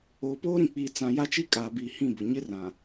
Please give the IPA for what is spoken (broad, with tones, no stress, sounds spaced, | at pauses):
oː˨ p oː˦ ɾ ĩ˨ k͡p iː˨ t͡s ã˨ j a˦ t͡ʃ i˦ kʼ aː˨ b iː˨ h ĩ˦˨ b ʊ˨ ɲ ɪ˦ r ã˨